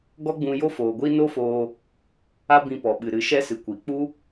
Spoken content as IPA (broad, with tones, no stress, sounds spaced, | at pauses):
ɡ ɔ˦ ɡ͡b ũ˧ j o˦ f oː˨ ɡʷ i˦ n o˦ f oː˧ | a˦ b ĩ˧ p ɔ˨ ɓ ɨ˨ ɾ ɨ˨˦ ʃ ɛ˦ s ɨ˨ kʷ i˨ k͡p u˦